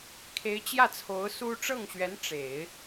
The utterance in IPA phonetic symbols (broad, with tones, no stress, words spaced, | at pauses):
kʰe˧˥ɪ̯t͡ɕjä˥˩t͡sʰo˧˥ʊ̯ su˥ ʈ͡ʂɤ˥˩ŋɕɥɛ˧˥n ʈ͡ʂe˨˩˦ɪ̯